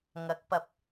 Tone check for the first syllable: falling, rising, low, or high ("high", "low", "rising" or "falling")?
rising